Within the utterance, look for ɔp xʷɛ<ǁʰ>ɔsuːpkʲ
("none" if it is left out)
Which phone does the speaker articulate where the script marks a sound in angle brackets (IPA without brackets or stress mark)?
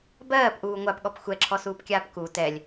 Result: ǁʰ